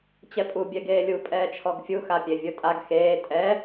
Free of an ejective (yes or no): no